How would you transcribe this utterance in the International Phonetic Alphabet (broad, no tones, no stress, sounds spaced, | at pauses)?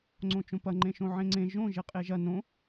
ŋ͡ǀ õ t͡ʃ õ p ɐ ŋ͡ǃ ẽ ʃ õ ʕ ẽ ŋ͡ǀ ẽ ʒ õ ʒ e qʼ e ʒ ɐ n õ